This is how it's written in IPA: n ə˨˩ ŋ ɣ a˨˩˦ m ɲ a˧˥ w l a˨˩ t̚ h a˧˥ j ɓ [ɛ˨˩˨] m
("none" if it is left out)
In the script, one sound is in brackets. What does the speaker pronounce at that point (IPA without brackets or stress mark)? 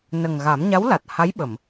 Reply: ə˨˩˨